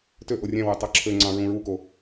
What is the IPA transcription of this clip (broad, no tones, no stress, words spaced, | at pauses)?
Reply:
tø ʔorʲæ̃wø tˤɑǁʰøŋ͡ǀɑ̃ ɹũɹuko